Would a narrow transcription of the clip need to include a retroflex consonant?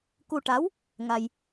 yes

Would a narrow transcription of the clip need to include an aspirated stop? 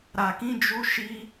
no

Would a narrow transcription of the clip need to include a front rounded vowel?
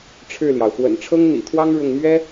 no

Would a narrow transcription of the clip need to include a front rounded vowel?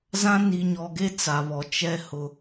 no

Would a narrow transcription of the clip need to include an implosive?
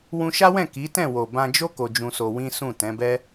no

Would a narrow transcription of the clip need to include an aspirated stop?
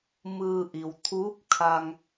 yes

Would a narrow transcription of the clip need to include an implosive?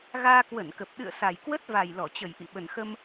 yes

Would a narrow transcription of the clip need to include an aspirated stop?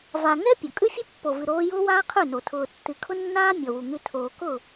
yes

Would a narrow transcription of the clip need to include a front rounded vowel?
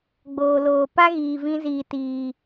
no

